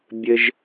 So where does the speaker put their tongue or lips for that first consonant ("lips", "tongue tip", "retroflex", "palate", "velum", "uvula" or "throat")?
lips